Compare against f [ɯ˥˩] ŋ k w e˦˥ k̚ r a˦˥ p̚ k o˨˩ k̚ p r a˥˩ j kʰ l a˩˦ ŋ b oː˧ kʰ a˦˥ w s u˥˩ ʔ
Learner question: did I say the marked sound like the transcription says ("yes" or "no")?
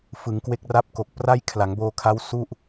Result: no